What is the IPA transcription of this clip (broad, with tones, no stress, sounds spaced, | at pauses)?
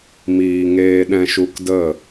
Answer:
m iː˨ ŋ eː˧ ɗ ɛ̃˧ ʃ u˧ k d ə˦˨